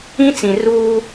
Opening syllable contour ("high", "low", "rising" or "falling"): high